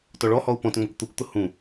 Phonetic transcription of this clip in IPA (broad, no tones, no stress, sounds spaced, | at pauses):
t ɔ ɭ ɔ h ɔ u̯ p ɔ̃ t ŋ͡m ʌ kʷ t̪ u kʷ t̪ ʊ h ũ